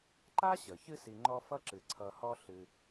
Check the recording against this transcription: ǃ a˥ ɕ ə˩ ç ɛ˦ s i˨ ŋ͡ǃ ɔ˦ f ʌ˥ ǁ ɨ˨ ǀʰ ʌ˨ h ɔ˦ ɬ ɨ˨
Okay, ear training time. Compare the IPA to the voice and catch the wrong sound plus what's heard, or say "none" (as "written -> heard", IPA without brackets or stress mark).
ɛ˦ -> ɨ˦